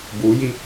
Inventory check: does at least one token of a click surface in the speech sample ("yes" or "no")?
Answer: no